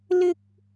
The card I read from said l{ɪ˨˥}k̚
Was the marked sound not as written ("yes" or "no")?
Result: yes